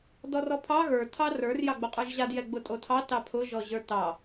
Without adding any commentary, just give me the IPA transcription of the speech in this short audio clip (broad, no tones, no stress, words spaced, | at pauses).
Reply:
dɔrɔpʰɑ ɣə˞ tʰɑrə˞r jɑɡ͡boqʼə˞ʒʑad jɛɡ͡bʊtʼotʰɑ tɑpʰʊ ʒɔʑə˞tɑ